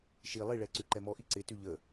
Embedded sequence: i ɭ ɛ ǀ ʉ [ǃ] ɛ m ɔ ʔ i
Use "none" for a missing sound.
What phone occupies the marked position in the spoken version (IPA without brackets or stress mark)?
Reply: ǃ